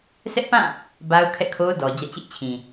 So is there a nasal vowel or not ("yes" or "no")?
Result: yes